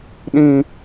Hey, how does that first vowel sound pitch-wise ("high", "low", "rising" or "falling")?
low